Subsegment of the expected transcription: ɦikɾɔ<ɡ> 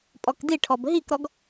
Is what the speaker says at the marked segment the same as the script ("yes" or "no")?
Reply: yes